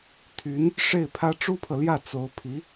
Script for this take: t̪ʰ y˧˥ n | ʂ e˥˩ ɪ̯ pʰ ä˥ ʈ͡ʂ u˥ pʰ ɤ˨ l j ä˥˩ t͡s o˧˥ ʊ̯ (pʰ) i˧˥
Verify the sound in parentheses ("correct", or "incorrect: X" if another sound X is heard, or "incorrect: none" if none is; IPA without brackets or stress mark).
correct